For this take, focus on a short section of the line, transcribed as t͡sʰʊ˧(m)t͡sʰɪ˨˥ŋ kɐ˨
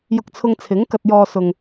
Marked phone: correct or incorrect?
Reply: incorrect